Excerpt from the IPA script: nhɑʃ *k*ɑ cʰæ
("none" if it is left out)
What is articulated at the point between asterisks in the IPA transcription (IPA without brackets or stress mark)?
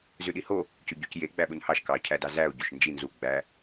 k